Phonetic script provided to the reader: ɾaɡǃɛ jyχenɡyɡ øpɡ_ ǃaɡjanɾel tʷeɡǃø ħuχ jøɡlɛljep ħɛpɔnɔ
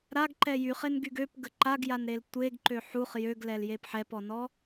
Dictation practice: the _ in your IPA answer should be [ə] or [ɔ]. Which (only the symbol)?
ə